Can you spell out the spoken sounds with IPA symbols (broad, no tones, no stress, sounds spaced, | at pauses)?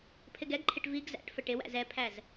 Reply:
pʰ ɪ ɡ ɛ ɡ ǃʰ ɪ ʈ v i ɡ z æ̰ ʈ f ə ʈ ɪ w æ̰ z ɛ pʰ æ z